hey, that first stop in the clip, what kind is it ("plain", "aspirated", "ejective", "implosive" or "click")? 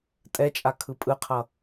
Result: ejective